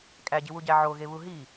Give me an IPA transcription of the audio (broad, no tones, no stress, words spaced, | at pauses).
kʼæɟiwuɟæ ʕoɣeβu ɦi